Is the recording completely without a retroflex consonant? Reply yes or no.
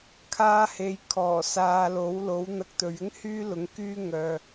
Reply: yes